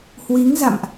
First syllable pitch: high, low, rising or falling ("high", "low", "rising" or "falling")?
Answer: rising